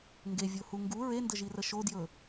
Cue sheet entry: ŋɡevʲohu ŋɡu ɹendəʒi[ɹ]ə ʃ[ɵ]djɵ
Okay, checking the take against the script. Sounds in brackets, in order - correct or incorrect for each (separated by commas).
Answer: incorrect, incorrect